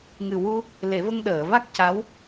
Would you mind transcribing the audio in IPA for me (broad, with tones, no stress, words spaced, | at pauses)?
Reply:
ŋɨ˨˩wu˧ | le˨˩˦və˧ŋ ɗəː˨˩˨va˦˥k̚ ca˧˥w